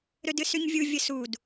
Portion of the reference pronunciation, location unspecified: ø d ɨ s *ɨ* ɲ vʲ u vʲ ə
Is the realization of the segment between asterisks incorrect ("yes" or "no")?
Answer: yes